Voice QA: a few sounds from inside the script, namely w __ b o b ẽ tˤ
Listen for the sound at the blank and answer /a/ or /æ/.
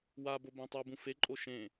a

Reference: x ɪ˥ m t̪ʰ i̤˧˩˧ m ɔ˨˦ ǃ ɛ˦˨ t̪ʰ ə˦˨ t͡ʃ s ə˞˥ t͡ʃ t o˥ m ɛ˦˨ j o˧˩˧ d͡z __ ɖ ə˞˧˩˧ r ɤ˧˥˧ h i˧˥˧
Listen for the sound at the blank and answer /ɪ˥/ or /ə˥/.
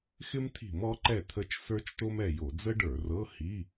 ə˥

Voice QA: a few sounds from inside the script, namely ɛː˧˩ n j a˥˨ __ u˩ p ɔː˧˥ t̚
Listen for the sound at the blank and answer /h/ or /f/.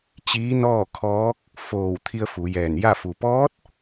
f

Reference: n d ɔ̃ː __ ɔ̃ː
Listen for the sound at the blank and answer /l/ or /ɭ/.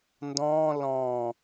l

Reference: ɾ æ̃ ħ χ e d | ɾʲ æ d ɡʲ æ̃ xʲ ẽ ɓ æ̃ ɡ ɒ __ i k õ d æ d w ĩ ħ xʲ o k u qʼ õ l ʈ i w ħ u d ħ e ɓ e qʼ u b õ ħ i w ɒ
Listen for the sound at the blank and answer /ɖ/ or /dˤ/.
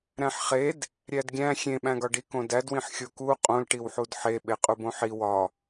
ɖ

